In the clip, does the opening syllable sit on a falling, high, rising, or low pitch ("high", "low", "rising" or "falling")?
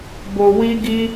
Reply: low